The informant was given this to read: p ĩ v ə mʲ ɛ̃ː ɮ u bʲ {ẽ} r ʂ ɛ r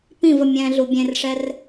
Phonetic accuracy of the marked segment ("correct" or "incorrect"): correct